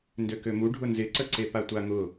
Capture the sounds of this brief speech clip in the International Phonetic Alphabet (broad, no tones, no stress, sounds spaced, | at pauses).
n d ø k ø m u ɖʱ ʊ n z ɪ ǀ ə ǀ e p a tʷ a ŋ ʊ